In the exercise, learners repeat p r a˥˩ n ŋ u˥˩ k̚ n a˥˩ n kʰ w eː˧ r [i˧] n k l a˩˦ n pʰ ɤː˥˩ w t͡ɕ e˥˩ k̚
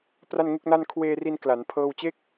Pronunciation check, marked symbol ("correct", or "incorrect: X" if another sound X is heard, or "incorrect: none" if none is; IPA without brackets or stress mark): correct